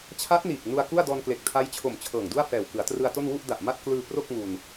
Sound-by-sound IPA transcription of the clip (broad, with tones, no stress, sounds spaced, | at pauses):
t͡ɕʰ a˦˥ t̚ n iː˨˩ k̚ n u˧ a̯ k u˥˩ a̯ d ɔː˧ n k l e˨˩ k̚ tʰ a˦˥ j t͡ɕʰ o˨˩ m t͡ɕʰ ɤː˨˩ ŋ d u˥˩ a̯ f ɛː˨˩ w k ɯ˩˦ a̯ t r ɯ˧ a̯ t o˥˩ n w u˥˩ ʔ d a˨˩ ʔ m a˥˩ t̚ k l ɯː˧ p r o˥˩ k̚ ŋ u˧ n